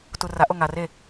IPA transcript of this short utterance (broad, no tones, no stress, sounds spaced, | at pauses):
t u r a ʔ o ŋ a r e